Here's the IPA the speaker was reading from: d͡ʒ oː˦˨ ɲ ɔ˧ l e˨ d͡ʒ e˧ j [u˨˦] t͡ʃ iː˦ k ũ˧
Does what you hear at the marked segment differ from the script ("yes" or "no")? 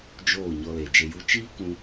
yes